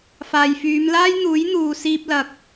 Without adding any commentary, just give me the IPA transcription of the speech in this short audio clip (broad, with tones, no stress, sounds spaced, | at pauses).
f aː˨ j f yː˨˧ m l aː˥ j n̪ uː˨˥ j n̪ uː˨ s iː˧ p̚ l ɐ˨ k̚